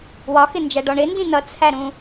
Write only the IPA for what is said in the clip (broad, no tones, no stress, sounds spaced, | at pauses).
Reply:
w ɒ x ɪ n d͡ʒ æ ɖ ɔ ɳ ɪ n d ĩ n ʌ t͡sʰ æ ɾ ũ